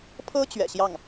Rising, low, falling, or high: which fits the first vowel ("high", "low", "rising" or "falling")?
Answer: high